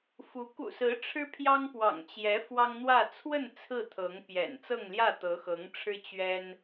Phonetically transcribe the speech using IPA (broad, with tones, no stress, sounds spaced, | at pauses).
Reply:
f u˧˥ k ṵ˨˩ s ɹ̩˧˥ ʈ͡ʂʰ ɻ̩˥ pʰ j ɑ˥ ŋ p w ɑ̰˨˩ ŋ t͡ɕ j ɛ˧˥ f w ɑ˥ ŋ n̪ w ä˥˧ t͡sʰ w ə˥˧ n t͡sʰ ɹ̩˥˩ t̪ʰ ɤ˧˥ ŋ p j ɛ̰˨˩ n t͡s ɤ˥˧ ŋ l j ä˥˩ t̪ ɤ˧˥ x ɤ˧˥ ŋ ʈ͡ʂʰ ɻ̩˥ t͡ɕ ɥ ɛ˥ n